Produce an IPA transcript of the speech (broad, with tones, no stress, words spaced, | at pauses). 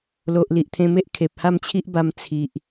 lo˨ʔli˨ʔt̪ʰẽ˧me˦ʔ kʰe˨p̚ha˥˧mt͡ɕʰi˦ʔba˧m t͡sʰi˨ʔ